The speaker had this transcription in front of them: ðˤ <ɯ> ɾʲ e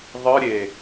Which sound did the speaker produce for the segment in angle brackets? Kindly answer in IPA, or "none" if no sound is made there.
ɯ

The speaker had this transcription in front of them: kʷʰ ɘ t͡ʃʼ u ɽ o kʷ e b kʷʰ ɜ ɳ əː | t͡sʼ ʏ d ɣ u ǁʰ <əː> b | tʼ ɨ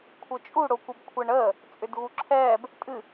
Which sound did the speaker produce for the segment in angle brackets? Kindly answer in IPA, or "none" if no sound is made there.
ɛː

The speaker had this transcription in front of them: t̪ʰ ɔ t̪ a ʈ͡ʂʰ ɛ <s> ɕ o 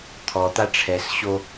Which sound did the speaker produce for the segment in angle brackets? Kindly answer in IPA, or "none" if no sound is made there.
s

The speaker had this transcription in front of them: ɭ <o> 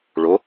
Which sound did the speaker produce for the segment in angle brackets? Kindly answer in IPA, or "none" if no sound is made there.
o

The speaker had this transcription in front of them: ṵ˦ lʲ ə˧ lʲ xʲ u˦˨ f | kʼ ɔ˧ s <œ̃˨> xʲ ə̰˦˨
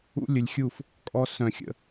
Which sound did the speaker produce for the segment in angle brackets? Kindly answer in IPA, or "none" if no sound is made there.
œ̃˨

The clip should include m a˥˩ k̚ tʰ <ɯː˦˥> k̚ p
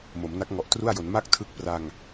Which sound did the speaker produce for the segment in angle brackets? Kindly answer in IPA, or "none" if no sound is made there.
ɯ˦˥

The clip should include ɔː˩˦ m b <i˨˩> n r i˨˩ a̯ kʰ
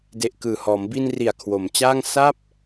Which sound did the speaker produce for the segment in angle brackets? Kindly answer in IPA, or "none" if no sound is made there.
i˧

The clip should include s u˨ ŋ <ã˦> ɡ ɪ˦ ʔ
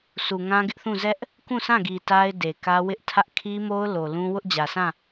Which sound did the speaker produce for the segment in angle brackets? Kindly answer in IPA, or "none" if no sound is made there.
ã˦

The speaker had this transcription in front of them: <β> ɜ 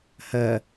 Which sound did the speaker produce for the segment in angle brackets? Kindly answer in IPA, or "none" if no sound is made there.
h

